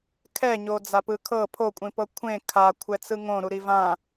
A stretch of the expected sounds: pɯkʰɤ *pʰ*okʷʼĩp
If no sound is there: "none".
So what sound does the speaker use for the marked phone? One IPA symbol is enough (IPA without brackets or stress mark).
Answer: pʰ